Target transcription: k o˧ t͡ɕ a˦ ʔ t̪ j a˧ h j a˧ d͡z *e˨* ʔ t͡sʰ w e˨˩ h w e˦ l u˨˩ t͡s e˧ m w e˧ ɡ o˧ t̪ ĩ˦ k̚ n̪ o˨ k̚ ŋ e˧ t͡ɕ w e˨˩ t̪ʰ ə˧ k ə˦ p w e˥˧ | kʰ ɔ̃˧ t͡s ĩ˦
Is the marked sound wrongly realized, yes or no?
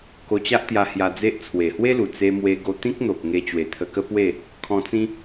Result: yes